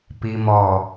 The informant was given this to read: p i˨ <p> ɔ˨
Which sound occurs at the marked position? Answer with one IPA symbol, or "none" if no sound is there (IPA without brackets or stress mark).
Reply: m